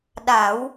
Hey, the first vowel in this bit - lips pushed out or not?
no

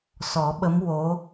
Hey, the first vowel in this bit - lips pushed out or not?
yes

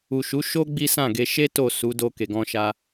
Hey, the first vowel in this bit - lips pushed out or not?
yes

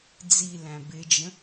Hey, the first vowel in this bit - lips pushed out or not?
no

